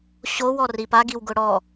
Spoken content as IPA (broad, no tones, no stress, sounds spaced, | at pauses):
ɕ o w ɔ r i p a ɡ i w ɡ ʊ ɽ ɔ